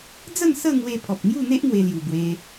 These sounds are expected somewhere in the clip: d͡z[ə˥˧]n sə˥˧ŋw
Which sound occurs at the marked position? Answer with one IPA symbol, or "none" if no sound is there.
ə˥˧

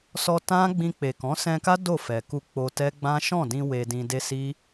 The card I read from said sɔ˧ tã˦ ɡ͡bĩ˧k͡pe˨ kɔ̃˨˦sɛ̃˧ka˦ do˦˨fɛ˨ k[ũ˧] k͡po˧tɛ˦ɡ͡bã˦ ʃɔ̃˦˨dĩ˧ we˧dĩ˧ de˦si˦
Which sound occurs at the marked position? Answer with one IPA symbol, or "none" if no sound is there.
u˧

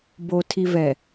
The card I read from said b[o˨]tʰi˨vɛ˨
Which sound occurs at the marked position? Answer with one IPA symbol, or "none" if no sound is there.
o˨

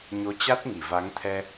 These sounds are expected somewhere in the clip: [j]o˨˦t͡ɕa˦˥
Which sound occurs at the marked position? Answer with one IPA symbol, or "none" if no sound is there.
ɲ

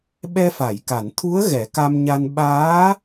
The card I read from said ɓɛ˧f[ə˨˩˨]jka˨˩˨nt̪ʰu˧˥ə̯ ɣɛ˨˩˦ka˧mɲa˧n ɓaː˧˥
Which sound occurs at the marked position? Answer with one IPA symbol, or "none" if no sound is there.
a˨˩˨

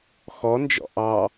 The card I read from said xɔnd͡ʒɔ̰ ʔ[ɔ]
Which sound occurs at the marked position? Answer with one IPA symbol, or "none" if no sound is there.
ɑ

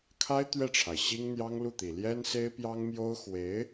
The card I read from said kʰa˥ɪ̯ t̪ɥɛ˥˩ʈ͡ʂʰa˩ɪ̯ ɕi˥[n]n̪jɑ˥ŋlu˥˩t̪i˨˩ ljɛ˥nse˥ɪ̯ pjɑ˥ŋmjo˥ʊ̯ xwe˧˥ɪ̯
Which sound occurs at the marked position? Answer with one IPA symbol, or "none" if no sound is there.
ŋ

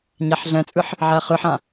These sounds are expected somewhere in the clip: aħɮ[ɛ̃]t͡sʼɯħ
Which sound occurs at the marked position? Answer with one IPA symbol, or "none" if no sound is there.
ɛ̃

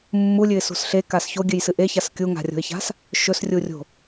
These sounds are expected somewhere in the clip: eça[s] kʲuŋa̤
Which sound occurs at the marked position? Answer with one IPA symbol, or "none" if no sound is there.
s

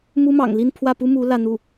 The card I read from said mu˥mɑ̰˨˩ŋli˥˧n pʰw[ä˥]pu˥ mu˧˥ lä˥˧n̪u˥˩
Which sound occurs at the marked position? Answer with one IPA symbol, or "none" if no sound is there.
ä˥˩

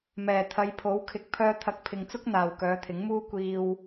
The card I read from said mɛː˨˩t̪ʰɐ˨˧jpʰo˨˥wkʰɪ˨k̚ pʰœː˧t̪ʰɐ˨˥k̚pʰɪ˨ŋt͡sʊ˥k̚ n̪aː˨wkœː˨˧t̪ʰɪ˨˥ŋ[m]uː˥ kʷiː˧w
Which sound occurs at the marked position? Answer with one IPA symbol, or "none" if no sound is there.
m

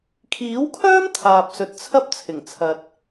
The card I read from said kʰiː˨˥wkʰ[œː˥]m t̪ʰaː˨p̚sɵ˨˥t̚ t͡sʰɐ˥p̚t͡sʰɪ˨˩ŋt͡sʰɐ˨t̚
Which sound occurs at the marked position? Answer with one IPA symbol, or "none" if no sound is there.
œː˥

